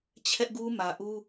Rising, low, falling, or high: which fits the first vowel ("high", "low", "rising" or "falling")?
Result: high